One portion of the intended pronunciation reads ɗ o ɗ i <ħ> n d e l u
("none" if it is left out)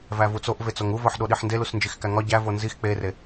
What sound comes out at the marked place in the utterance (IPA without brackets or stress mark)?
ħ